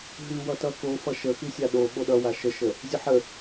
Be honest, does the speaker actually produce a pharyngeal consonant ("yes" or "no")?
yes